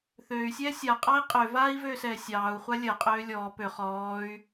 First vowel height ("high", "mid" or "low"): mid